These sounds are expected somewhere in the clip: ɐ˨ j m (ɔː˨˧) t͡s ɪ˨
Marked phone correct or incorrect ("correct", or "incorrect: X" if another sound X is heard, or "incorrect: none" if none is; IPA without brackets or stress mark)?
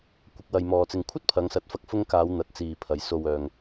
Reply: incorrect: ɔː˨